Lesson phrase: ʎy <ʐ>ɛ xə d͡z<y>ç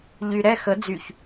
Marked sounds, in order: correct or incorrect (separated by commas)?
incorrect, correct